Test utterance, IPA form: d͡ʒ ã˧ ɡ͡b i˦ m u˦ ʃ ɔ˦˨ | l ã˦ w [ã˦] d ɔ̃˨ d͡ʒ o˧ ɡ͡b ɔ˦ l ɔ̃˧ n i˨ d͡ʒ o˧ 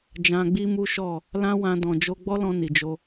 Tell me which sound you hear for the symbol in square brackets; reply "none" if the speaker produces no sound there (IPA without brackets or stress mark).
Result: ã˧